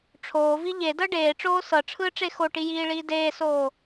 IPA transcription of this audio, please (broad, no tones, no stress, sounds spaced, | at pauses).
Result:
ʈ͡ʂʰ oː v i ʎ e d ɤ ɖ eː ʈ͡ʂ oː s ɤ ʈ͡ʂʰ ɯː ʈ͡ʂ e x o ʈ i j iː ɭ iː d eː s oː